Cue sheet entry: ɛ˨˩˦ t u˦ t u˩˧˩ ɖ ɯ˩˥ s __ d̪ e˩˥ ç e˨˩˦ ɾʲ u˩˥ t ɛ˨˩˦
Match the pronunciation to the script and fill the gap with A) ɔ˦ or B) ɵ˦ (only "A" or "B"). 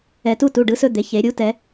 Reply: B